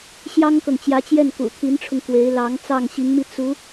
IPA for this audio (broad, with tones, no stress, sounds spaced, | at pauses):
ɕ j ɑ˥ ŋ k ɤ˨ ŋ t͡ɕ j ä˧˥ t͡ɕ j ɛ˥˩ n k ṵ˨˩ t̪ʰ i˧˥ n ʈ͡ʂʰ ʊ˧ ŋ k w e˧˥ ɪ̯ l ɑ˧˥ ŋ t͡s ɑ˥˩ ŋ ɕ i˧˥ ŋ m i˧ t͡s u˧˥